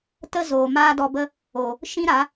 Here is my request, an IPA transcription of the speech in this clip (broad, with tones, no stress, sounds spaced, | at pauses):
t ə˦ z oː˨ m aː˦ d ɔ˧ b ə˦ | o˨ | ʃ ĩ˦ ɾ a˨˦